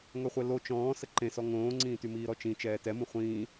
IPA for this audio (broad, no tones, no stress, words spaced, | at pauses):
ŋœχʷɛlo t͡ʃɔ̃ː səǃẽsɔ ŋõːŋ͡ǀĩːty miːɾɔt͡ʃĩ t͡ʃɛːtɛmũ χʷĩː